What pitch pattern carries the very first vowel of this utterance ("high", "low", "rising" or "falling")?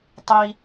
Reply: high